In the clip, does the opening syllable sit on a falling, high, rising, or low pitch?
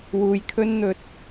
low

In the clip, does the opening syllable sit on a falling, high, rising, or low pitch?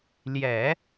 low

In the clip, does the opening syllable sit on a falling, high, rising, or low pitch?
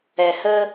low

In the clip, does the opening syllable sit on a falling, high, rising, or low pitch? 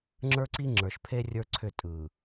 high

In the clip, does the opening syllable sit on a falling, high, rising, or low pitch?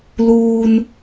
low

